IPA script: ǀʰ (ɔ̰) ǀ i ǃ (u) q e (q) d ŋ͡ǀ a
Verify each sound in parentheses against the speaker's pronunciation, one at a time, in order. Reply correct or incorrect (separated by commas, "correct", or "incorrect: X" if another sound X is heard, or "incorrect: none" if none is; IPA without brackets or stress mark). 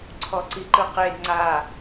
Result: incorrect: ɔ, incorrect: ɯ, incorrect: none